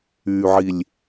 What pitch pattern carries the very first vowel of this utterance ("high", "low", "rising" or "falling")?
low